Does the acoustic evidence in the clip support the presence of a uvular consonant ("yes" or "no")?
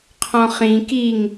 yes